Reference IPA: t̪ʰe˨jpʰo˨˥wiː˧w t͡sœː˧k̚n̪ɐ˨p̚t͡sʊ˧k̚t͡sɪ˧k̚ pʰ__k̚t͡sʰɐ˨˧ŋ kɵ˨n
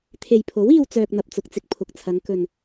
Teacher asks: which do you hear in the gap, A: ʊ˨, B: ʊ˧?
A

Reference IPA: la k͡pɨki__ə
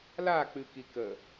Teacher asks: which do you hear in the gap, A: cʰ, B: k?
B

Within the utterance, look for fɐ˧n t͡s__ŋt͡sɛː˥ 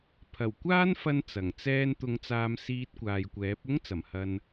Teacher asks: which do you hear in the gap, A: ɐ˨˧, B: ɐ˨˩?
B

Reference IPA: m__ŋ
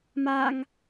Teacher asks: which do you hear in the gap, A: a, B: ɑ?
A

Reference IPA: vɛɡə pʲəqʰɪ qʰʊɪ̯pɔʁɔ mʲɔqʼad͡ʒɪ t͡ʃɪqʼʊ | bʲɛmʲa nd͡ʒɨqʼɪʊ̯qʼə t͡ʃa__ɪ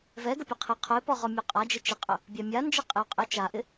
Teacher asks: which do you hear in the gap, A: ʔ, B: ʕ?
A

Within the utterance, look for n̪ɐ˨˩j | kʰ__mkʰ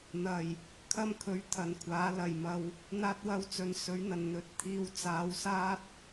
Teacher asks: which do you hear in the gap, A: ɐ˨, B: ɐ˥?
B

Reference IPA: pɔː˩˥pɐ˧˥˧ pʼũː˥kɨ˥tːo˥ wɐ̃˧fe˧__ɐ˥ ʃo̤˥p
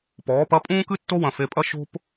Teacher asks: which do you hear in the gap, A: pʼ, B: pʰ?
A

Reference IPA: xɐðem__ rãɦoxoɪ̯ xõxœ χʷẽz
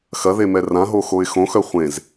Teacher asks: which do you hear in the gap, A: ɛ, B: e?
A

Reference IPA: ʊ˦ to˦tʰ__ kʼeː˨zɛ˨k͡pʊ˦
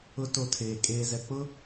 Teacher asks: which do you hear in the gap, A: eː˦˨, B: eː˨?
B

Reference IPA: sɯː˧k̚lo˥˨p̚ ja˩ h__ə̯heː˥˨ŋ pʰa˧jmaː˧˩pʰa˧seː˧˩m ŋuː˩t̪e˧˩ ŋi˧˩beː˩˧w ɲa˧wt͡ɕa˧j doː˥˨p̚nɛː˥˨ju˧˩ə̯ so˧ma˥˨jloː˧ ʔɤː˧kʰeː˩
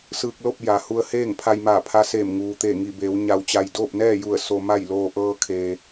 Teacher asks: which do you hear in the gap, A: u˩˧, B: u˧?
B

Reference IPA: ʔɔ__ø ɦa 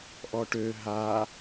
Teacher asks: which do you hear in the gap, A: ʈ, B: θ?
A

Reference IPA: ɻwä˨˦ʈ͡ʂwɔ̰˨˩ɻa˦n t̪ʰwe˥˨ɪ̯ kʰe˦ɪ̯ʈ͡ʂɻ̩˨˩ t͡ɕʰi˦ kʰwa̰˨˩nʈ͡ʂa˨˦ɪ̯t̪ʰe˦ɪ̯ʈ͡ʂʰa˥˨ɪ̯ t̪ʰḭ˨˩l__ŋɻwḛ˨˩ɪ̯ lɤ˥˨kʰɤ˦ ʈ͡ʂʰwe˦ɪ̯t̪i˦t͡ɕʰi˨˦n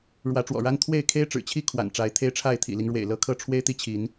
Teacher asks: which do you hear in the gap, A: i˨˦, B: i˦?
B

